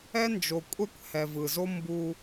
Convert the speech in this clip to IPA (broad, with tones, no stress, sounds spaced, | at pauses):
ɛ˦ n d͡ʒ o˨ kʷʼ ɛ˦ kʷ h ɛ˨ v ɯ˨ z o˦ m b u˦